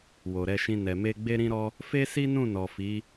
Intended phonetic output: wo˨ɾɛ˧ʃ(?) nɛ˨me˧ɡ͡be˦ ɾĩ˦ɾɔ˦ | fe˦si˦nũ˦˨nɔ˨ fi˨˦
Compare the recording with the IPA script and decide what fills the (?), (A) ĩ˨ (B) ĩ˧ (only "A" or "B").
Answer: B